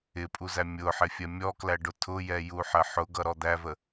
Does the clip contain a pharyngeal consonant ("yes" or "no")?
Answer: yes